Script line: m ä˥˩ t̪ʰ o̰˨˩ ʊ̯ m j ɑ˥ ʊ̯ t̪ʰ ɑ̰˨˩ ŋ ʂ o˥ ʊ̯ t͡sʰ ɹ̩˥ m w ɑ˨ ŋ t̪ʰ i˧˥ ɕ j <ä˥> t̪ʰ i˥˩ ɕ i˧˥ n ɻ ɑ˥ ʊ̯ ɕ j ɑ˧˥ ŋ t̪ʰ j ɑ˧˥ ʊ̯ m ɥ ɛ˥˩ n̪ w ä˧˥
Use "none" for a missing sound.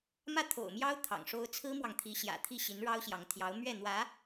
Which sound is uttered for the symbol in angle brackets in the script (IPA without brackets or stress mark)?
ä̰˨˩